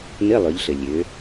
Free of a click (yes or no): yes